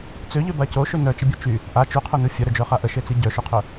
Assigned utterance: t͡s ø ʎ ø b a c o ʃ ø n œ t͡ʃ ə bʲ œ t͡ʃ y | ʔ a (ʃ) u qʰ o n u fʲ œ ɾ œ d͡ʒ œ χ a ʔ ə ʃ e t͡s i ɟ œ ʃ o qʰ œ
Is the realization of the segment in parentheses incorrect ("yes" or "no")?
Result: yes